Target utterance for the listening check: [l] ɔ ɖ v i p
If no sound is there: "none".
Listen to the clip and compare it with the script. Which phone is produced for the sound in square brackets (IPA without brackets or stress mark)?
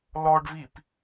l